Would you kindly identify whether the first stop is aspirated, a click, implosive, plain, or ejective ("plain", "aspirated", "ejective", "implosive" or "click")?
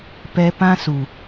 plain